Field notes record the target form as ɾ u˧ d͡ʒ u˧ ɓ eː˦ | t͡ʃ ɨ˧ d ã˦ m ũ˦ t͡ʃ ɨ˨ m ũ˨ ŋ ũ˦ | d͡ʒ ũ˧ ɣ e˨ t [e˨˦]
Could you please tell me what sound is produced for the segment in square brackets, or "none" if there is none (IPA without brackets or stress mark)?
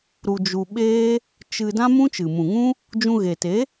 e˨˦